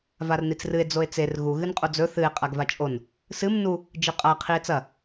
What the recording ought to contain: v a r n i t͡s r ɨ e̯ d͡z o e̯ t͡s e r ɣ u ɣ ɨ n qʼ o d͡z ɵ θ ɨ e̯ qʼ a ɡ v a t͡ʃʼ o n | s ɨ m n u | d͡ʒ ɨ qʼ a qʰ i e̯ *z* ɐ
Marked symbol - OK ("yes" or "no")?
no